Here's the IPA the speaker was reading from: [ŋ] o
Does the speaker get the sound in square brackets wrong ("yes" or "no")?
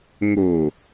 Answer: no